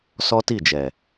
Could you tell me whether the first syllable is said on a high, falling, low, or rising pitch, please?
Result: high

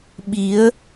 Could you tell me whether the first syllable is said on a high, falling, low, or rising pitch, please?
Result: rising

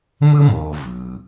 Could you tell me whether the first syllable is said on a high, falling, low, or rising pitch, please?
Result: high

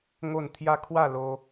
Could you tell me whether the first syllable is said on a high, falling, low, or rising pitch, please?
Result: falling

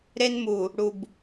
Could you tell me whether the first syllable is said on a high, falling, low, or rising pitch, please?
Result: high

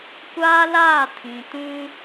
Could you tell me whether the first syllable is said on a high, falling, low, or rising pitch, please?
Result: high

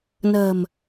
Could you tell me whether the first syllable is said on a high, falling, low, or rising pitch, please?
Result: low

